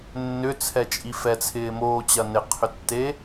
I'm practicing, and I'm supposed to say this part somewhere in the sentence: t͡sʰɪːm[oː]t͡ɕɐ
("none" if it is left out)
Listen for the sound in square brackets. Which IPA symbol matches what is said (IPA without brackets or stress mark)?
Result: oː